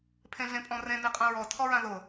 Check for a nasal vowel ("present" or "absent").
present